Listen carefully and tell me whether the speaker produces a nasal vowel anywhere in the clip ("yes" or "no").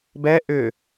no